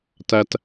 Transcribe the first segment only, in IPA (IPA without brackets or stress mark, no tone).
t